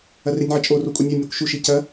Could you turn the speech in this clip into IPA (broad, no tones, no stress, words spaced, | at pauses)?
ɐrenʲʕɐt͡ʃʼo rokʷʼanʲa nʲakʷʃu ʃicɐ